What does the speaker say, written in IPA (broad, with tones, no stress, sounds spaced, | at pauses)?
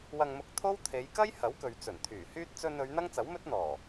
w ɐ˧ ŋ m ʊ˧ k̚ t̪ʰ o˥ w t̪ʰ e˨˧ j k ɐ˥ j h ɐ˨˥ w k ɵ˨ ɥ t͡s ɵ˨˩ n t̪ʰ yː˨˩ h yː˥ t̚ t͡s ɵ˧ n ɵ˨˧ ɥ n̪ ɐ˥ ŋ t͡s ɐ˨˥ w m ɵ˥ t̚ n̪ ɔː˨˩